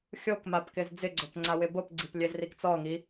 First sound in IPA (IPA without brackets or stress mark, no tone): xʲ